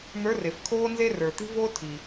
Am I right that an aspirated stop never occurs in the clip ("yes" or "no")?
no